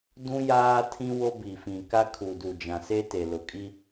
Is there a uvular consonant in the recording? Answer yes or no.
no